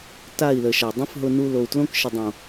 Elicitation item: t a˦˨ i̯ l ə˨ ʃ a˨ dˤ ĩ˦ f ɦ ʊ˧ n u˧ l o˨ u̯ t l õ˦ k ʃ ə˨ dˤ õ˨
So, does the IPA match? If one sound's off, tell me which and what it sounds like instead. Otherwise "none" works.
none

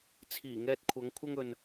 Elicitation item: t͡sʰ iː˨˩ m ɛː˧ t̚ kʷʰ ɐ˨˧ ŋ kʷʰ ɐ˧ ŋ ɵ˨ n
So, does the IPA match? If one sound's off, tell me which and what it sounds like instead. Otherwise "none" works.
m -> ŋ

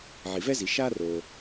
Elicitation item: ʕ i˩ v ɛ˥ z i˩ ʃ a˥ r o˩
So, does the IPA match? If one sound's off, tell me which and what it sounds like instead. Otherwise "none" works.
none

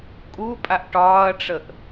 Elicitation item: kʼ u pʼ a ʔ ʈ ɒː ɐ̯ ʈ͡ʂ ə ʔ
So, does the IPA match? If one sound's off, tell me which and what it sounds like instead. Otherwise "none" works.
none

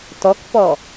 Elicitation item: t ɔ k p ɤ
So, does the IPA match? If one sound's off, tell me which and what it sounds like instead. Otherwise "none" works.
ɤ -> ɔ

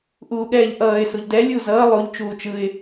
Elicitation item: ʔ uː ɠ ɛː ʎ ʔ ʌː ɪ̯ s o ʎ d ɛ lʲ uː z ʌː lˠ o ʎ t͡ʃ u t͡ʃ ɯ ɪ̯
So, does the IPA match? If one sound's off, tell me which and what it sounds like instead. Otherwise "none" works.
u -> uː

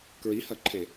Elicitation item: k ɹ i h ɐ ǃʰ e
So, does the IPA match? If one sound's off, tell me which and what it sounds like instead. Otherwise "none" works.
none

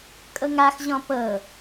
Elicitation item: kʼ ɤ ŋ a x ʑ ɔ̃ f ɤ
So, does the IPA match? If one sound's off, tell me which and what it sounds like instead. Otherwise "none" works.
f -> p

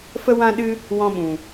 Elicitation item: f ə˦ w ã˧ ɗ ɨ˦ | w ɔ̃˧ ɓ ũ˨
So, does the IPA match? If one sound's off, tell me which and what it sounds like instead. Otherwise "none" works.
ã˧ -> ã˦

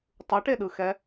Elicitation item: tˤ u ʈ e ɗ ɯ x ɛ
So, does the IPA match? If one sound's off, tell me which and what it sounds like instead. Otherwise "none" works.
none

